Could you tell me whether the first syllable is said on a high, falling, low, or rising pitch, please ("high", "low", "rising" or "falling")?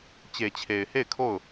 low